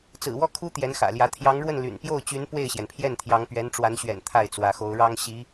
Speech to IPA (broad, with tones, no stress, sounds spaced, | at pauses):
t͡s ɹ̩˨˩ w ɔ˥˩ kʰ u˥ t̪ j ɛ˧˥ n x ä̰˨˩ l j ä˧˥ t̪ʰ j ɑ˧˥ ŋ ɻ w ə˥˩ n l y̰˨˩ n p j o˥˩ ʊ̯ t͡ɕ y˧˥ n p w e˥˩ ɪ̯ ɕ j ɛ˩ n pʰ j ɛ˥˩ n t̪ʰ j ɑ˧˥ ŋ p ɥ ɛ˧˥ n ʈ͡ʂ w a˧˥ n ɕ ɥ ɛ̰˨˩ n t̪ʰ a˥˩ ɪ̯ t͡s w ä˧˥ x o˧˥ ʊ̯ ɻ ɑ˥ ŋ ɕ i˧˥